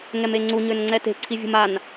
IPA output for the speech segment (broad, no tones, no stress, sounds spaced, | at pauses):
ŋ ɛ m e ŋ͡ǀ u ɲ ø n ŋ͡ǀ ɛ t e̤ ǀʰ i vʲ ṳ m a n